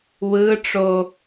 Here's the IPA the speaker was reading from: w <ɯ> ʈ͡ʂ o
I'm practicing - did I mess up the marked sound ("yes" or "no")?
no